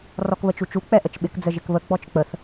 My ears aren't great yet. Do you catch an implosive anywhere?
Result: yes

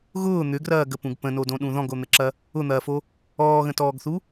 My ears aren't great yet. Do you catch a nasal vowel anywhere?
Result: yes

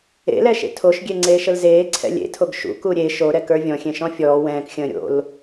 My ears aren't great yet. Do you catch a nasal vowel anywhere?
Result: yes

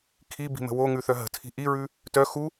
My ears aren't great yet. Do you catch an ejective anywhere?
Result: no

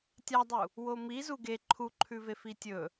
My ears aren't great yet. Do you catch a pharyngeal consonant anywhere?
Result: no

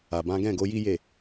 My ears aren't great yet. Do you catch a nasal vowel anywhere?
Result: yes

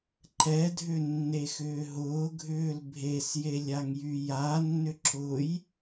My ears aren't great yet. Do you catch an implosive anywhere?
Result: no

